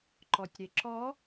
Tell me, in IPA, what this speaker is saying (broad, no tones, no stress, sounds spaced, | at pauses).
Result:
ǃ ɔ tʲ ɾ e ǁ ɔ